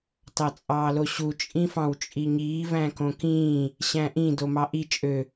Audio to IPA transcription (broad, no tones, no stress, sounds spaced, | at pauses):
t ɑ t͡sʼ ɑː l o ɕ u t͡ʃʼ ĩ f ɑ̃ w t͡ʃʼ i ɲ iː v æ̃ k õ k ĩː | ɕ æ̃ ʔ ĩ d o m ɑ ʔ i t͡ʃʼ ø